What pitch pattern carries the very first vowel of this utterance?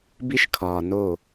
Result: high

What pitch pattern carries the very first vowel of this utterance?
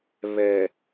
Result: low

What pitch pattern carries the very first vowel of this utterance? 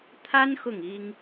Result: high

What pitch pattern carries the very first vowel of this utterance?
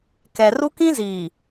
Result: low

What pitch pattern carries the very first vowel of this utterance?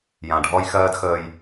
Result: low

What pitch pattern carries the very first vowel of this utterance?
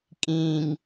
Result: low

